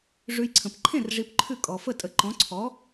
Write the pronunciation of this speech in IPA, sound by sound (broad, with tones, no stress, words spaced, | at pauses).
ʐʉ˧jǀʰə̃˩p ǃʰẽ˥˩r ʐi˧pǃʰʉ˥˩ kʼɔ˩ fə˥˩tʼə˩˥ ǃɔ̃˩˥ǀʰɔ˩˥